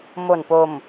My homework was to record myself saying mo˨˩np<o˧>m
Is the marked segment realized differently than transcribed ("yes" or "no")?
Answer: yes